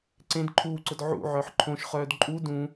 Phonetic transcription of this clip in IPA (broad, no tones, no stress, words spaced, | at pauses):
ǀẽd ǃʰuːǀʊd ʕṵʕœħ ǃʰõʃχœːd ǃʼu dũ